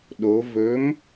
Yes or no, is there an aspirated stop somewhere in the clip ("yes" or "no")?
no